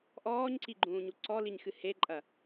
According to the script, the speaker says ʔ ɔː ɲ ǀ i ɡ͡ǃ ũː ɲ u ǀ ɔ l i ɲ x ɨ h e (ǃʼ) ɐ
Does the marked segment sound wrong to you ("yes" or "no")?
no